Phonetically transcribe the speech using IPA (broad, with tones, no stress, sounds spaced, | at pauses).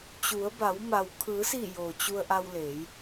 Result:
t͡ɕ u˩˧ ə̯ b a˩˧ w m a˩ w kʰ ɯː˩˧ s iː˧˩ j oː˩ t͡ɕ u˧ ə̯ ʔ a˧ w l eː˩˧ j